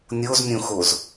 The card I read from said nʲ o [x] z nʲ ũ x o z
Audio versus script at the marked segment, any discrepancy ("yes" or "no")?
yes